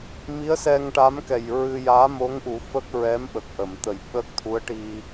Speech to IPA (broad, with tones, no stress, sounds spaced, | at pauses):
m i˧˥ ə̯ s ɛ˧ ŋ ʈ a˧˥ m k ɛ˨˩ j ɹ ɨ˧ j aː˧˥ m o˧˥ ŋ ʔ u˨˩˦ f ə˦˥ k̚ ɹ ɛ˧˥ m ɓ ə˨˩ k̚ ʔ ə˨˩˨ m t̪ ə˨˩ j ɓ əː˦˥ k̚ t̪ʰ u˧˥ ə̯ ʈ i˧